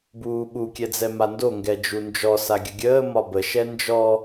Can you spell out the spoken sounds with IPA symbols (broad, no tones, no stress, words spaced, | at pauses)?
buːɓu kʲɛd͡zɛmando ŋɡɛd͡ʒund͡ʒɔ saɡʲəɡʲəː mɒbə ʃɛnd͡ʒɔ